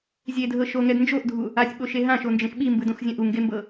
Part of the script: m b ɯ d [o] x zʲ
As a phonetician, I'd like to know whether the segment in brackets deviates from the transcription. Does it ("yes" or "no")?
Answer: yes